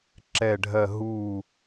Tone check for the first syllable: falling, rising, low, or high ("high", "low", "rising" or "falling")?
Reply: falling